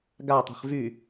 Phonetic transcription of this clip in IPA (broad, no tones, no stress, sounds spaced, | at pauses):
ɡ a tˤ e̤ χ v y